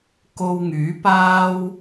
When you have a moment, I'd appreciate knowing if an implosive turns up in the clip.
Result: no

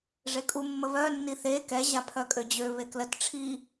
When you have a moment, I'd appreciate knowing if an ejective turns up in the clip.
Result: yes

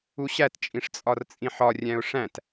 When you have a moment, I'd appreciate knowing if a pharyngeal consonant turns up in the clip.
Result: yes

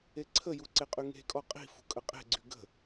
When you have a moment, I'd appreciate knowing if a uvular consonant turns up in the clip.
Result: yes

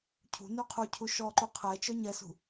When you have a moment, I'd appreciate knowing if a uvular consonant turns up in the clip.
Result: yes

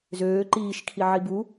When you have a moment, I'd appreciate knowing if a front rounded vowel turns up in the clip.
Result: yes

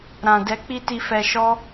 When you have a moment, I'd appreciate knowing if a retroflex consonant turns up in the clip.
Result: no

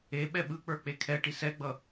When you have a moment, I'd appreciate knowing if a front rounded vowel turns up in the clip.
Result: no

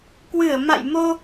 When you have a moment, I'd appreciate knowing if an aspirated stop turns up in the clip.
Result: no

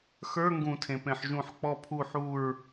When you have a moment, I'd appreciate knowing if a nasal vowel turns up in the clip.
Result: yes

